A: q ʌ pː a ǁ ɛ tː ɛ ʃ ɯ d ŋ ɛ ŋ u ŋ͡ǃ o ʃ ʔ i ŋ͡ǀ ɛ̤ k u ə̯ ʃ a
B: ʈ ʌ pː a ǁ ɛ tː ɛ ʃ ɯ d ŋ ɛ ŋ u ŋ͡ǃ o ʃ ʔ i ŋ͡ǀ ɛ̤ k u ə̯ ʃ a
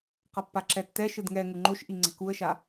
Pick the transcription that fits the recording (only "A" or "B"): A